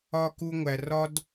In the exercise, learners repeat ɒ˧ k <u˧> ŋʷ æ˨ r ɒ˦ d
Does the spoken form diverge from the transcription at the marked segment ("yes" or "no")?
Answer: no